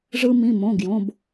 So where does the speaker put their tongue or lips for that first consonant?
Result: retroflex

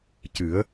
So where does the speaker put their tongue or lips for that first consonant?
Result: palate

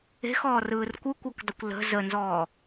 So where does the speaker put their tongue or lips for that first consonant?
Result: velum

